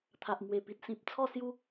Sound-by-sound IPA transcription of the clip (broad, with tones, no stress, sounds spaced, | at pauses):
t̪ʰ a˨ ʔ m w e˨˩ p i˨ t̚ s ĩ˨ p̚ t͡sʰ ɔ˥˧ s j u˦